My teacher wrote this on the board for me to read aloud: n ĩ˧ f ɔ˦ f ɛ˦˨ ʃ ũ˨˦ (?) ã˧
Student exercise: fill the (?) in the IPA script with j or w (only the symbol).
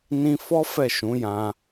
j